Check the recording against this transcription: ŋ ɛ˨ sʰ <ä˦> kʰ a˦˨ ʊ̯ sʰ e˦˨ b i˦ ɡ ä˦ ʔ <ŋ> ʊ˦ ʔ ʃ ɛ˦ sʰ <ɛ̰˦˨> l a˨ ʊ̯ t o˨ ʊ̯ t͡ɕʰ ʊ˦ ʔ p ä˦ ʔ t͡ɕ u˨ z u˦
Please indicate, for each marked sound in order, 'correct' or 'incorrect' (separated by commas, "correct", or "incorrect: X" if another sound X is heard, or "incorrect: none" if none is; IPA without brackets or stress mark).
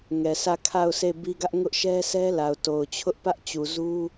incorrect: ä˦˨, correct, incorrect: ɛ˦